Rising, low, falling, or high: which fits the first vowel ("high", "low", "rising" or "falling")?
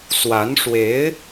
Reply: rising